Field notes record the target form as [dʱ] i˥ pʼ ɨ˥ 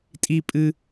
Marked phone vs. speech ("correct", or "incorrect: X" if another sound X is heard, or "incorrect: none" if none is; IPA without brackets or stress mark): incorrect: tʼ